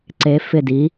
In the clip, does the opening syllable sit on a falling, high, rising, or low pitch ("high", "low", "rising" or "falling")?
rising